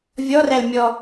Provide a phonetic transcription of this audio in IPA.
vʲ ɔ r æ l mʲ ɔ

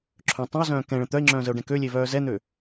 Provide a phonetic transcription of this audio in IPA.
ǁʰ œ̃ tˤ ə̃ o̯ z œ̃ː k ɛ̃ ɭ ə̃ t̪ œ e̯ ŋ͡ǁ œ̃ː z ə o̯ ɖ ɛ̃ k ø lʲ e v œː z ɛ n̪ ø

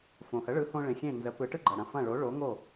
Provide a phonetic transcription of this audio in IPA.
f õ˩ h ə˩˥ ɭ ɯ˩˥ h õ˧ ɭ ẽ˩ xʲ ẽ˥˩ n z ə˩˥ p ɯ˩˥ ʈ ɯ˥ ɡ͡ǃ ɐ˩ ɽ ɐ̃˩ f ɐ̃˥˩ ɭ o˩˥ ɭ o˩˥ ŋ o˥˩

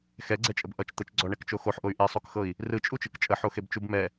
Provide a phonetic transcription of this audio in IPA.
x ɛ ɡ͡ǀ ɛ t͡ʃʼ ə b ʔ ʌ t͡ʃ t̪ ə t͡ʃ ɡ͡ǀ ɔ ɳ ɛ k t͡ʃ o x o ħ ʔ o y̯ ʔ e sˤ o k x ɤ i̯ | r ɯ t͡ʃʼ u t͡ʃ ɯ k t͡ʃʼ ə ħ o x e b t͡ʃ u b m ɛ

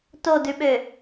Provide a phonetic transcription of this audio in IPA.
t o d ʉ ɓ ø

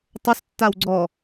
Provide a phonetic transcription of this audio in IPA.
tˤ ʊ s tː a w ɡ͡ǀ ɔ

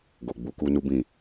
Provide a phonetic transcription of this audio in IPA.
ɡ o˨ ɡ͡b u˨˦ k u˧ n u˦ b ĩ˦˨

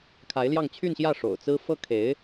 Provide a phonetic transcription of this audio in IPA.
kʰ a˧˥ ɪ̯ l j ɑ˥˧ ŋ t͡ɕʰ y˥˧ n ɕ j ä˥˩ ʂ o̰˨˩ ʊ̯ t͡s ɹ̩˥ f ɤ˥ kʰ e˧˥ ɪ̯

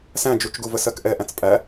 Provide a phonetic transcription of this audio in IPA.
s æ̃ d͡ʒ u t͡ʃ ɡ u v ə s ɜ k ʔ ɛ ʔ æ̃ t͡s pʼ æ

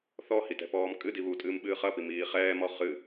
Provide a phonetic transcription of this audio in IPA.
θ ɔ h i t ɛ̤ p ɔː m kʼ ɨ d i β u tʼ ɨː m ɓ ɨː χ ɐ p i m iː χ ɛː m ɔ χ ɨ

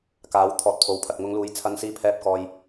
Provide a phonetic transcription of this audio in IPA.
k aː˨˥ w t̪ʰ ɔː˨˥ t̚ pʰ o˨˥ w pʰ ɐ˨ t̚ ŋ ʊ˨˧ ŋ l uː˨˧ j t͡sʰ ɐ˧ n s iː˧ pʰ ɛː˧ p̚ k ɔː˨ j

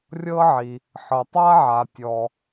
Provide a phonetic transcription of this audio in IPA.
rʲ ɤ˥ ʕ i˩ | ħ ɤ˩ tˤ a˥ ʕ a˩ tʲ ɔ˩

